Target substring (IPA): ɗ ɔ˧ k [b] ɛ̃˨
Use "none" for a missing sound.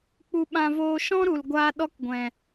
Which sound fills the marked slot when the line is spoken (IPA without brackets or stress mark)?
ɡʷ